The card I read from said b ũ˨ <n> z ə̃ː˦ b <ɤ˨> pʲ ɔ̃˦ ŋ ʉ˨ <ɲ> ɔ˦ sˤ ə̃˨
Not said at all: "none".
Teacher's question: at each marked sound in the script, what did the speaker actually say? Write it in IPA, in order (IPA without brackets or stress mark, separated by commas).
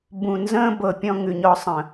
n, ɤ˨, ɲ